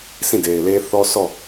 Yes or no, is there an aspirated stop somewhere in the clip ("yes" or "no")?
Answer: no